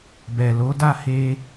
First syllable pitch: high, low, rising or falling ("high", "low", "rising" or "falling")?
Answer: low